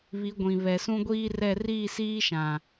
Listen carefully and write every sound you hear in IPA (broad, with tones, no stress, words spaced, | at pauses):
βi˨˦ɡʷĩ˨ βɛ˨sũ˦ɡʷiː˦rɛ˦˨ riː˦˨siː˦ʃã˨